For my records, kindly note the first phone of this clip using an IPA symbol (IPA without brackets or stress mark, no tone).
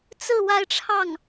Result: t͡s